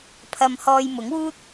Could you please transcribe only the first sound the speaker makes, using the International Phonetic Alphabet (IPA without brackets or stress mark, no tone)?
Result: pʰ